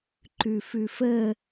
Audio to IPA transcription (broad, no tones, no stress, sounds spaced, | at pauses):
ǃ ʉ f ʉ f ə